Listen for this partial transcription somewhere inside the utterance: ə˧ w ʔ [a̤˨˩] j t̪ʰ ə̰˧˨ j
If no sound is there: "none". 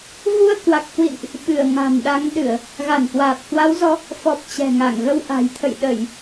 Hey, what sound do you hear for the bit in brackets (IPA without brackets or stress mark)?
a̤˨˩